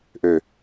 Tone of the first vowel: low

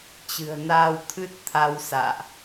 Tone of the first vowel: low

